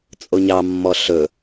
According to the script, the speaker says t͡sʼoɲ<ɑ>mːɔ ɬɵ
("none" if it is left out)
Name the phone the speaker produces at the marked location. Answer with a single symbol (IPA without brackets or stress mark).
ɑ